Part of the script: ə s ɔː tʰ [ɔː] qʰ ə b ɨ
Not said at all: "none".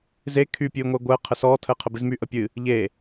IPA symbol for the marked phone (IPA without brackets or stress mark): əː